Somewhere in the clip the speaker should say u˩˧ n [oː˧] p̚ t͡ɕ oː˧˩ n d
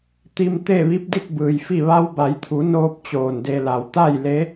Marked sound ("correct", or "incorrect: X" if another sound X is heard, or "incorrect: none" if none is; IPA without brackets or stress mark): correct